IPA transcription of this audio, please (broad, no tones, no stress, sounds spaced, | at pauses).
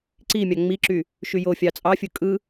ǀ i mʲ ɑ ŋ͡m i ǁ y | ʃ y j o fʲ ɑ t͡sʼ ɑ fʲ ɯ kʼ ɯ